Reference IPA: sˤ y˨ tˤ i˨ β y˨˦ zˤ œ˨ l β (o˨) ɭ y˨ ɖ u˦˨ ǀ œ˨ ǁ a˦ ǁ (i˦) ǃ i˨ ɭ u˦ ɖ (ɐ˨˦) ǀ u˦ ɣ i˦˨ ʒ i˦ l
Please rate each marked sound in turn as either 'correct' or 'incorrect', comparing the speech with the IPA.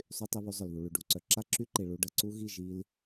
incorrect: u˨, incorrect: y˦, incorrect: ɐ˨

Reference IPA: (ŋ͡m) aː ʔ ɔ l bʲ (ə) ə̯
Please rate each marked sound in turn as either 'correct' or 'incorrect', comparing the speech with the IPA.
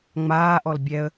correct, incorrect: ɛ

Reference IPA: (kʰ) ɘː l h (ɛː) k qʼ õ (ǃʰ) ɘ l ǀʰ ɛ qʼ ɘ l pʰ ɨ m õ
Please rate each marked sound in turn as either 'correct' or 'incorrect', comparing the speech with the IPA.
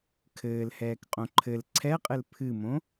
correct, correct, correct

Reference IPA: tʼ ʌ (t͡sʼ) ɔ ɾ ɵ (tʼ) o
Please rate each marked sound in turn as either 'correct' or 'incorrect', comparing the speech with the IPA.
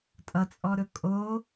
correct, incorrect: kʼ

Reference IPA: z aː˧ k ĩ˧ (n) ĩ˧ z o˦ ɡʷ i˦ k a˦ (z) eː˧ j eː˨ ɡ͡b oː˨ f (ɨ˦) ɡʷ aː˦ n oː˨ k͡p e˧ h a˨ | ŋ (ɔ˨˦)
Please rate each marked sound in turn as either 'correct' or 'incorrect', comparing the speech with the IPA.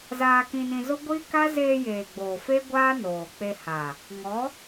correct, correct, incorrect: e˦, correct

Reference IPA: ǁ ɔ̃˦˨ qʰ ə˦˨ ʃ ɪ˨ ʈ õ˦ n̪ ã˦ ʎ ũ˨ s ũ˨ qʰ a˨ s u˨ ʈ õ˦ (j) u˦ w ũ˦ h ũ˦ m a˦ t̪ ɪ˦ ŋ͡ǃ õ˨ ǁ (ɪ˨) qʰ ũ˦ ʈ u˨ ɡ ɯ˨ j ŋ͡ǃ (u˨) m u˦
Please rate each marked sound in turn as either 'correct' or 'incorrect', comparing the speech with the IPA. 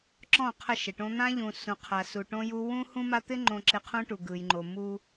correct, correct, incorrect: o˨

